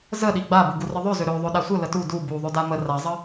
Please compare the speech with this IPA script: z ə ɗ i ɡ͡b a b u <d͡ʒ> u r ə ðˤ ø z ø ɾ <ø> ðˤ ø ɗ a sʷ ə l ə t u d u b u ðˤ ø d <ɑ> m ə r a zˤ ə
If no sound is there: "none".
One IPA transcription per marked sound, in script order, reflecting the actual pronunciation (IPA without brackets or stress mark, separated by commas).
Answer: ɡ, ø, a